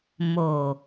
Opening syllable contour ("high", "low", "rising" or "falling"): low